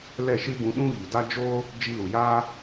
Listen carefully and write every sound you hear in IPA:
l ɛ˦˨ ʃ ɨ˦ b ũ˧ ɗ ũ˦ ɣ i˨ d a˦ d͡ʒ oː˦ | d͡ʒ i˧ l u˨ j aː˦

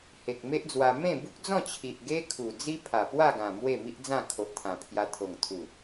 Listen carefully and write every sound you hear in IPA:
h e˨ k̚ m e˦ ʔ d͡z w a˧ m ẽ˥˧ b u˦ k̚ d͡z ɔ̃˥˧ t͡ɕʰ i˨ ʔ ɡ e˦ kʰ u˨˩ d͡z i˦ pʰ a˨˩ p w a˥˧ ɡ ã˨˩ m w e˥˧ m i˦ ʔ d͡z ã˥˧ kʰ o˨ ʔ t̪ʰ ã˨˩ pʰ j a˧ t̪ʰ o˨˩ ŋ t̪ʰ u˨˩

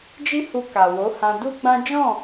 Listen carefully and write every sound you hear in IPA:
d͡ʒ i˦ h u˧ k a˨ w o˨˦ h ã˧ d u˦ ɡ͡b ã˦ d͡ʒ ɔ̃˦˨

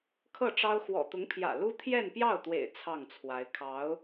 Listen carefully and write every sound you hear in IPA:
kʰ ɤ˥˩ ʈ͡ʂ ɑ˥ ʊ̯ x w ɔ̰˨˩ t̪ ʊ˧˥ ŋ pʰ j ä̰˨˩ l u˥ t̪ʰ j ɛ˥˧ n p j ɑ˥˩ ʊ̯ t̪ w ḛ˨˩ ɪ̯ t͡sʰ ɑ˥˩ ŋ t͡sʰ w a˧˥ ɪ̯ kʰ ɑ˧˥ ʊ̯

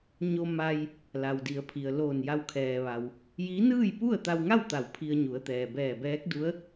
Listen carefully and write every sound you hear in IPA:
ɲ o˧ m a˧ j | l a˩ w d i˩˧ ə̯ pʰ i˩ ə̯ l oː˧˩ n j a˧ w kʰ ɛː˩ ʋ a˩ w | j i˧˥ n ɯː˥˨ j p u˥˨ ə̯ t̪ a˧ w ŋ a˥˨ w t̪ a˧˩ w pʰ i˧ ə̯ ɲ u˩˧ ə̯ t̪ ɛː˩ b ɛː˧˩ b ɛː˧˥ k̚ d u˧˥ ə̯

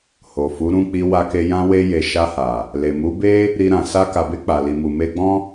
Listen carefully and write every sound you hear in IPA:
h o˨ f u˨˦ ɾ ũ˦˨ k͡p i˧ w a˧ k e˧ j ã˧ w e˧ j e˨ ʃ a˧ h a˨ | l e˨ m u˨˦ b e˦ | ɾ i˧ ɾ ã˨ s a˧ k a˨ b e˧ k͡p a˨ l i˨ m u˨ m e˧ ɡ͡b ɔ̃˦

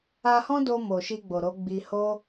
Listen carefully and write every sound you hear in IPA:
a˧ h ɔ̃˦ d o˧ m o˨ ʃ i˧ ɡ͡b o˨ ɾ o˨˦ ɡ͡b i˧ h o˦

